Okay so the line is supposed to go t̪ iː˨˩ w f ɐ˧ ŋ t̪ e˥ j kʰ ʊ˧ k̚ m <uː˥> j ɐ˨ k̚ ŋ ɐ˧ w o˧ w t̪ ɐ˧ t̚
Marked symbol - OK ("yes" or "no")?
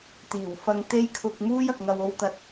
yes